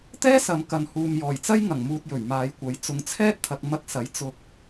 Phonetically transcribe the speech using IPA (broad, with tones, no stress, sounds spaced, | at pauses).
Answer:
t̪ ɛː˥ s ɐ˨˧ m k ɐ˨ n h uː˨ m j ɔː˨˩ j t͡s ɐ˥ j ŋ ɐ˨˩ ŋ m uː˧ t̚ j ɵ˨˩ ɥ m aː˨˧ j kʷ ɐ˨˥ j t͡s ʊ˨ ŋ t͡sʰ ɛː˥ t̚ t̪ʰ ɐ˨ k̚ m ɐ˧ k̚ s ɐ˨˥ j t͡s ʊ˧ k̚